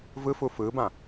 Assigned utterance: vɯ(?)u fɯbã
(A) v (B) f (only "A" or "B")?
B